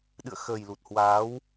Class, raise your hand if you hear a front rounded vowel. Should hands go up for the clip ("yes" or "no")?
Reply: no